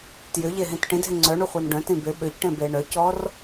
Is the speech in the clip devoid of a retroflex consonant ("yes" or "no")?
no